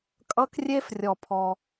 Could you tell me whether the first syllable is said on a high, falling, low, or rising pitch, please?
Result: high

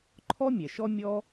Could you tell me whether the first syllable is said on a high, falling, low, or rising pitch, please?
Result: high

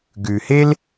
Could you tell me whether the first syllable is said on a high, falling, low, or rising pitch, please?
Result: low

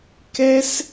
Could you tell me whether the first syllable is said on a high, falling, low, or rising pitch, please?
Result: high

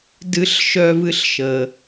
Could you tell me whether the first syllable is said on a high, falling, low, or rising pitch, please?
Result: high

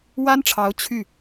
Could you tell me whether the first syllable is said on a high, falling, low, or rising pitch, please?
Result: high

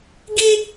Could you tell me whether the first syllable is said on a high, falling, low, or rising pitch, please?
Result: high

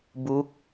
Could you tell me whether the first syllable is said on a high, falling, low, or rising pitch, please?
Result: rising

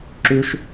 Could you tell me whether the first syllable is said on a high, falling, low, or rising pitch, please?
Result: high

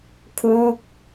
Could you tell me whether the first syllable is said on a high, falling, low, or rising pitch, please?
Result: falling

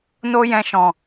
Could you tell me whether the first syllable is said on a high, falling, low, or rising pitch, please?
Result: high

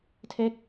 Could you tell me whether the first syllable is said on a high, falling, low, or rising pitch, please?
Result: falling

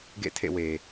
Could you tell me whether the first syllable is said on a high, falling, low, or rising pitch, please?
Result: falling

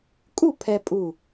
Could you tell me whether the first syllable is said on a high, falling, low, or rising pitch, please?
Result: falling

